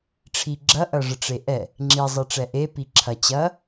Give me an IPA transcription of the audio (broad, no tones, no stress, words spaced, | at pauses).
ʈ͡ʂʰiɡ͡ǁɐ ʔɐʐəʈ͡ʂeʔɛ | ŋ͡ǁi zˤiʈ͡ʂɛʔe piǁʰɐ t͡ɕɐ